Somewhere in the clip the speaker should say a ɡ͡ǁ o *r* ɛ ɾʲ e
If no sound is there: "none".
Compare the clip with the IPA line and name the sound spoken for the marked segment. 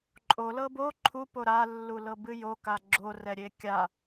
r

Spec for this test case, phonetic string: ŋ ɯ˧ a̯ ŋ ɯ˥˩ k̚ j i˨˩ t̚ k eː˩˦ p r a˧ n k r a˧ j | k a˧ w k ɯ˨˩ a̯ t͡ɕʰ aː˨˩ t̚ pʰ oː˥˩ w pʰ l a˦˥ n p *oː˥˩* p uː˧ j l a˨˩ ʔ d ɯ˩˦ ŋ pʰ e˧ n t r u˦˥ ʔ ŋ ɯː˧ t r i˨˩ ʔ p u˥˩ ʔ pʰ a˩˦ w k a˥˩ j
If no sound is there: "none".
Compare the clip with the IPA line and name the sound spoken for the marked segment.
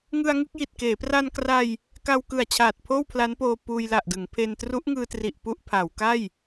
oː˧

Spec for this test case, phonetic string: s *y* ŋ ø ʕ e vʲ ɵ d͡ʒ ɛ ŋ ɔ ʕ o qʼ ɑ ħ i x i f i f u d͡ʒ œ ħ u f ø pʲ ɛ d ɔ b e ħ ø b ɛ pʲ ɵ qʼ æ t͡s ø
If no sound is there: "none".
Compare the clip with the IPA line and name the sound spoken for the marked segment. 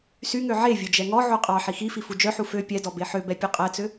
y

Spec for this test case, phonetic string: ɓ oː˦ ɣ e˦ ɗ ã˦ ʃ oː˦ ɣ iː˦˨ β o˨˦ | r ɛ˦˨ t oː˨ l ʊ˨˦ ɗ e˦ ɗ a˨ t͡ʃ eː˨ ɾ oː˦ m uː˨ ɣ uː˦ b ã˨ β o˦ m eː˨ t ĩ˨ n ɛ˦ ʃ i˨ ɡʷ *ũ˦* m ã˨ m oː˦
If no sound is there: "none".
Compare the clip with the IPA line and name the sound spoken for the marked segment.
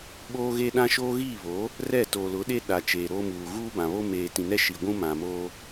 ũ˦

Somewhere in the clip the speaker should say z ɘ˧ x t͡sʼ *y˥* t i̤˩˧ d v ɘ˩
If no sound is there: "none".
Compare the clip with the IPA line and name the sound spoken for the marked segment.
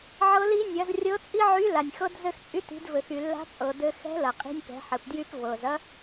y˧˥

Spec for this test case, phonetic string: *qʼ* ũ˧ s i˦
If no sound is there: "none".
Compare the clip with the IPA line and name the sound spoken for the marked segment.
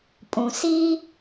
pʼ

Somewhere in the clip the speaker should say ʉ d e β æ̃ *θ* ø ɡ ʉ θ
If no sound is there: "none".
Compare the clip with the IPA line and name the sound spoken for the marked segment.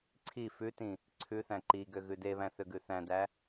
θ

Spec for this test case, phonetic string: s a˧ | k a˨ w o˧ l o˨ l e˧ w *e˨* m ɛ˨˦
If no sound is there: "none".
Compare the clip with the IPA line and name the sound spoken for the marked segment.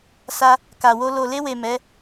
e˨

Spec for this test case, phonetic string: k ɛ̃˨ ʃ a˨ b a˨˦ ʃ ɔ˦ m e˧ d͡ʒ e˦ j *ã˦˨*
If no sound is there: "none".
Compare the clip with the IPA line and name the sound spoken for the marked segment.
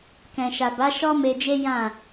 ã˦˨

